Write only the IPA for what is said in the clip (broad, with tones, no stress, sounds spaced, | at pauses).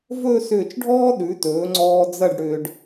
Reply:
v ɵː˥˧ s ʏː˧˩ t͡ʃ ɖʱ ɔː˥ ɗ ʉ˩˧ t ɵː˩˧ ŋ͡ǀ ɔː˧ d͡z ɐ˥˧ ɖ ɽ ʏː˧ ɖ